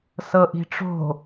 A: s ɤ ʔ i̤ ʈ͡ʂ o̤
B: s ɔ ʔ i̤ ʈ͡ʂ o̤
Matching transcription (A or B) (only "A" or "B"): A